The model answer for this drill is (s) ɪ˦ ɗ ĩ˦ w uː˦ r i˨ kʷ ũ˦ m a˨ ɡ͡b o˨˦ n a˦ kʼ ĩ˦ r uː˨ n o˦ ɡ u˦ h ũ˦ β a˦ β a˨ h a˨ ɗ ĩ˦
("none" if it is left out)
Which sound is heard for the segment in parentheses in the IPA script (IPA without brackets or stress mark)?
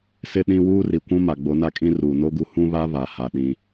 s